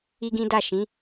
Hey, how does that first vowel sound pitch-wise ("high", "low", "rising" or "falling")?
high